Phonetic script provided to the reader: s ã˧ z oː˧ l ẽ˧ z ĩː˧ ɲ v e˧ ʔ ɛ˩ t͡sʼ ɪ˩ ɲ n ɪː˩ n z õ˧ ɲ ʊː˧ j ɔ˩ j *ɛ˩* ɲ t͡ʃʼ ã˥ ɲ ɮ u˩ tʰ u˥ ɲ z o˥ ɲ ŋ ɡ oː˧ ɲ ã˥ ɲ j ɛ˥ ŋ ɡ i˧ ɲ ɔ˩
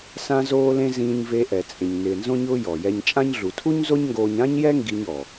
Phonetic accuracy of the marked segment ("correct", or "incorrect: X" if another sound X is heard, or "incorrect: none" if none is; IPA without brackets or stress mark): incorrect: ɛ˧